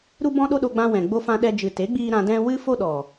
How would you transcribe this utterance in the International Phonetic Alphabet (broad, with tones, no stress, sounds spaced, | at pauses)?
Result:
ɾ u˦ b ɔ̃˦ ɗ o˦ ɗ o˧ ɡ͡b ã˧ w ɛ̃˨ ɡ͡b o˧ f ã˧ ɗ ɛ˦ d͡ʒ ɨ˨ t e˨˦ ɡ͡b iː˧ ɾ ã˧ d ɛ̃˦ w ɨ˦ f o˦ ɗ ɔ˨